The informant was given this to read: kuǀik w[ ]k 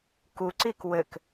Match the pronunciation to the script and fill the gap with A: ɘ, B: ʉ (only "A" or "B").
A